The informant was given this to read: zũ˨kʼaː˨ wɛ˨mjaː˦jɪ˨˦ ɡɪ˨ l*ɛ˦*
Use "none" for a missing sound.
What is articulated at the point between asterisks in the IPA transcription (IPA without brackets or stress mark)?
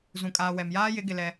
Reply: ɛ˦